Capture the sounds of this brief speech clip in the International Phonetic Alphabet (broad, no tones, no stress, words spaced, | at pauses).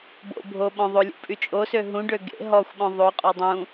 bo̰ bʱo ɓɔ̃ðˤolʲṵ pʼyt͡ʃʼosø ɦũɖø ɡḛ ɦɔxʷɓɔ̃ ðˤoqʼɔ dˤũ